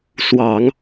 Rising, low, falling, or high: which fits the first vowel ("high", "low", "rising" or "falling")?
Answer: low